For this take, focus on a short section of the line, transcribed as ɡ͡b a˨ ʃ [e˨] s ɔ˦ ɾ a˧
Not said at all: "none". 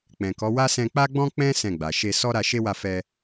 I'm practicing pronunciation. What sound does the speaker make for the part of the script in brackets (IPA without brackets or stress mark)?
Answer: e˧